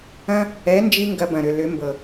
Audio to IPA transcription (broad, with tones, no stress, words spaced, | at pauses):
ɐ̃˦ | ɛ˨˦nd͡ʒi˧ ŋɡɐ˧bɐ̃˨ɾʏ˨lʏ˨˦ mbɤ˨